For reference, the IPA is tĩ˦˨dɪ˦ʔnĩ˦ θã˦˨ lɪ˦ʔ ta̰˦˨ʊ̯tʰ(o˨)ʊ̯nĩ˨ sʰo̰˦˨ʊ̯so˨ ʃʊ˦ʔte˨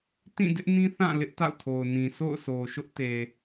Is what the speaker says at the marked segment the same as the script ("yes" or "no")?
yes